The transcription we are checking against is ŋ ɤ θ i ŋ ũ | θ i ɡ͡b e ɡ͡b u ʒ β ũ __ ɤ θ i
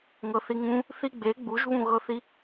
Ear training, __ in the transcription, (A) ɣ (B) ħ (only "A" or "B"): A